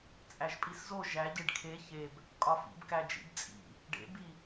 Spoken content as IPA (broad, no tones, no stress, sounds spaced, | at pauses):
t͡sʼ æ ʒ pʼ i s z o ʒ æ ɟ e ɖ kʰ e ç e b | kʼ ɒ f ḭ b k æ d͡ʒ ḭ b t͡sʼ ḭ | ɖ ḛ b i